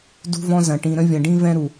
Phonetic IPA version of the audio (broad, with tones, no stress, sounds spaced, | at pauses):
d ṳ˧ v ɔ̃˧ z ɐ̃˨ ʈ ĩ˨ ɾ ə̃˧ vʲ ɐ̃˨ ɖ ĩ˧ v ɛ̃˧ ɾ u˨